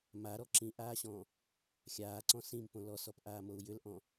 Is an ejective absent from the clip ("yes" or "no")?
yes